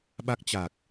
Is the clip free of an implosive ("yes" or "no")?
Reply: no